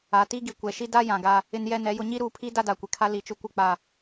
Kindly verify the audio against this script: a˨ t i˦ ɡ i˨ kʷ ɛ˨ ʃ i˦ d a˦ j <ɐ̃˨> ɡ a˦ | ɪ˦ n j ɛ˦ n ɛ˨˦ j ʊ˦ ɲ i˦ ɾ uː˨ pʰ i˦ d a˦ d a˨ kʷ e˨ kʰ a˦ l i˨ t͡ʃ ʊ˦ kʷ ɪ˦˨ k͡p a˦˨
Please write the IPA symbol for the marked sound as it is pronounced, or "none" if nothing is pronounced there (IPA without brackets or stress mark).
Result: ã˨